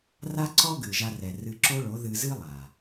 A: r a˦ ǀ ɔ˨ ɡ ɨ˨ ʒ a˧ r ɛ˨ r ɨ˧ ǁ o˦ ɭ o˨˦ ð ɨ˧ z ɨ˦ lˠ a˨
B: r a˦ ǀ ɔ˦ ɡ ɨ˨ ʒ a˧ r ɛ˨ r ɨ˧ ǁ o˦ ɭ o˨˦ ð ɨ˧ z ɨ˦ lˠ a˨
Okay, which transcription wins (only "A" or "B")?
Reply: B